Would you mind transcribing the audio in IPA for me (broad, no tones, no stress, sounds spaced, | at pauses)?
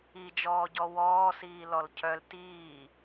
i d͡ʒ ɔː ɟ ɔ w ɔː s iː l ɔ l cʰ œ l t iː